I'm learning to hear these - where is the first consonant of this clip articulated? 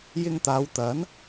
palate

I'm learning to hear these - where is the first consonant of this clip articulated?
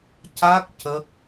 palate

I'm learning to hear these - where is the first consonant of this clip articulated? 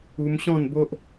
lips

